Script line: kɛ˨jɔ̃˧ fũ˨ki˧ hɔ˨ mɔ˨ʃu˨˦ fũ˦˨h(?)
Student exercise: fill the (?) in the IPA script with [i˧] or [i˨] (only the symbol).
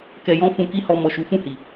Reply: i˨